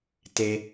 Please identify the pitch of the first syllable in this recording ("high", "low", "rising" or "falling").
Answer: low